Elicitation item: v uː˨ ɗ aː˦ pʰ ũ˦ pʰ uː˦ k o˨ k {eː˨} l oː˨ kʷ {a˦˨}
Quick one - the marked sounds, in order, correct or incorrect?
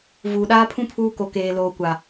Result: correct, incorrect

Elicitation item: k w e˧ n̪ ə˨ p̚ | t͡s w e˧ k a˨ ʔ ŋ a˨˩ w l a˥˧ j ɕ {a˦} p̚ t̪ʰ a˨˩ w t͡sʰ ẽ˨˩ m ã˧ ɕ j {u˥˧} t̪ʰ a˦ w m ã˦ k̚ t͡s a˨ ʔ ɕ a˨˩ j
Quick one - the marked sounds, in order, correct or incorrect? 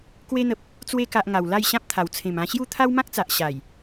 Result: incorrect, correct

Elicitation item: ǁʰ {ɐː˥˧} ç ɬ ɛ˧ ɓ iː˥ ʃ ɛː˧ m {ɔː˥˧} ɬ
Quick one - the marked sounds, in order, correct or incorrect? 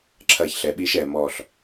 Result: correct, correct

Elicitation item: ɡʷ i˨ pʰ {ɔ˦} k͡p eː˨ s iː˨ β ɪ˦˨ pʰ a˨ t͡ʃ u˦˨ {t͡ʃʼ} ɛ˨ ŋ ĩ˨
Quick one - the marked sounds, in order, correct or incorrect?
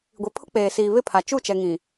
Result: incorrect, incorrect

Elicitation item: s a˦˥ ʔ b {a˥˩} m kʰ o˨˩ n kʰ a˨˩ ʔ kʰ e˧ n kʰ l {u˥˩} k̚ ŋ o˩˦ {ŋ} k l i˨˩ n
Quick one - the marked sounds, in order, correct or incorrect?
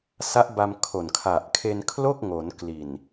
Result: incorrect, incorrect, incorrect

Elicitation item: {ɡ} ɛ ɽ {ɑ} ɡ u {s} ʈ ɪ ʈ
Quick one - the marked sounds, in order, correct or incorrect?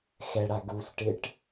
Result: incorrect, incorrect, correct

